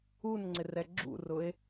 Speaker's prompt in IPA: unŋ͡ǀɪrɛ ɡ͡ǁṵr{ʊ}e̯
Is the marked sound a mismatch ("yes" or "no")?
no